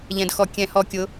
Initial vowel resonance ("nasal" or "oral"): nasal